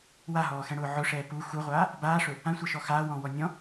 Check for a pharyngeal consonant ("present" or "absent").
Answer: present